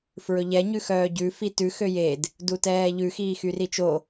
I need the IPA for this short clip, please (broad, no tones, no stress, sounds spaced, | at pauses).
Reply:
f ɹ ɵ ʎ ɛ ɲ ʉ x œː ɟ ʉ f i t ʉ x ø j e d | d u t ɛː ʎ ʉ x iː x y r i t͡ʃ o